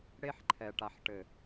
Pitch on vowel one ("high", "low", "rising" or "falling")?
high